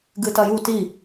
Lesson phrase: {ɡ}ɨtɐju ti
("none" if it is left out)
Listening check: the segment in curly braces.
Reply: ɡ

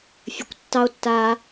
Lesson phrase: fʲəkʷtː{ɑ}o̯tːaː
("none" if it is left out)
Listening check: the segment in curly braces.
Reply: ɑ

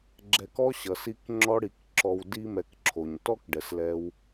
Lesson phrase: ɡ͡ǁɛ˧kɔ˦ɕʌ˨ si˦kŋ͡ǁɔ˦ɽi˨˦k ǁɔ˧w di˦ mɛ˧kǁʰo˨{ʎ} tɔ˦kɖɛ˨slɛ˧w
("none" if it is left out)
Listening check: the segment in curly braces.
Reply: ɲ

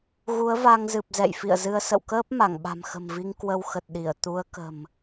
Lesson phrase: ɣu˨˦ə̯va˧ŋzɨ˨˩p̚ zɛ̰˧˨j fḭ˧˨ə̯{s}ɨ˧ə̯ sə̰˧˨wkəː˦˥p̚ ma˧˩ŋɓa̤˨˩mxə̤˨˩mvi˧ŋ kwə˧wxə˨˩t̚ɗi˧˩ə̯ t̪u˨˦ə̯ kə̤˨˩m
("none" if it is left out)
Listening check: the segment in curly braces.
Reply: z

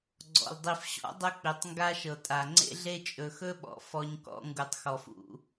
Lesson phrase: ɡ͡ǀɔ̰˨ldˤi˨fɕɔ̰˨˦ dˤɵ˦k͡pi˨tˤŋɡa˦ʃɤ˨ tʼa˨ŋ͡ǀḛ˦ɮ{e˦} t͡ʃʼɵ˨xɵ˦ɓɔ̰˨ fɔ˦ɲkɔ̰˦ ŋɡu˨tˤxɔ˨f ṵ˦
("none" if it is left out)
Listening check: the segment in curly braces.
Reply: e˦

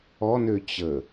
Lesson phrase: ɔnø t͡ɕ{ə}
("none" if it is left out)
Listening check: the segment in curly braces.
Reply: ə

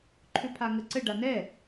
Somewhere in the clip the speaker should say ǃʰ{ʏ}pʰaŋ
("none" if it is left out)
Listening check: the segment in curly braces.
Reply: ʏ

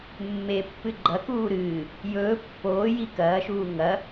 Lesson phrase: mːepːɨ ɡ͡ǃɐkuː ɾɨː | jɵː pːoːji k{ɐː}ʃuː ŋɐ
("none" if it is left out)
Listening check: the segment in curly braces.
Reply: ɐː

